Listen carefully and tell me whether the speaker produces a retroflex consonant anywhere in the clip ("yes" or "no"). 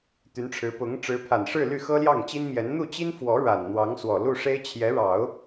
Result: yes